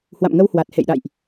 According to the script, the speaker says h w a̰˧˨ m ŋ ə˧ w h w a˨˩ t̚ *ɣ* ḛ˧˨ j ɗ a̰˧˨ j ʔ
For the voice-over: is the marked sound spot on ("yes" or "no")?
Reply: no